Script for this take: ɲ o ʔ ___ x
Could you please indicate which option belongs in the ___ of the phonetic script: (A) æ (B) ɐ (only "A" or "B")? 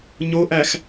A